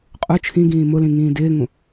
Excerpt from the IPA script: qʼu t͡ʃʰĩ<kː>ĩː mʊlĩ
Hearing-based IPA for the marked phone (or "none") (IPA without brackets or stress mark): ɡ